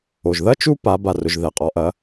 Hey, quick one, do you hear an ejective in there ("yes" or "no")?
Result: yes